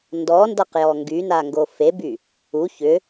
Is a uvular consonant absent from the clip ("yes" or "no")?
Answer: no